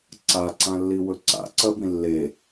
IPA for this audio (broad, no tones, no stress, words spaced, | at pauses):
ǀaǀãlːiwɵ ǀa̰ǀɐbĩ lːe